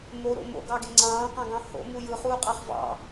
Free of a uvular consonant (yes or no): no